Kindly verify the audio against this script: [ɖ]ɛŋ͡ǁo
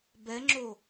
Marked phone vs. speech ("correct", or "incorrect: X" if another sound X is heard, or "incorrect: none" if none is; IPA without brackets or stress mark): incorrect: b